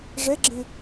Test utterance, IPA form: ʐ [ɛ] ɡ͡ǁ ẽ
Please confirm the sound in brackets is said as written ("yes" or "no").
yes